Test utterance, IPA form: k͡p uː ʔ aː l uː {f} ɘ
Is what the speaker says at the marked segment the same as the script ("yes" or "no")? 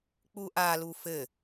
yes